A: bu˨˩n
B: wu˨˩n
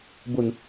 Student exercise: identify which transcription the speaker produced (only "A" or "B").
A